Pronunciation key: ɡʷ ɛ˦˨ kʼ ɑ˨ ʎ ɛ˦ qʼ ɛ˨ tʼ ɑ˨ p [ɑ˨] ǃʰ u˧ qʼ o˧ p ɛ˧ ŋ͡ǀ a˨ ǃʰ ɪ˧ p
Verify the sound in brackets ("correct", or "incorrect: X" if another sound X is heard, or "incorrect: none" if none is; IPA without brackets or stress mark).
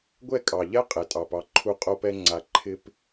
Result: incorrect: ɑ˧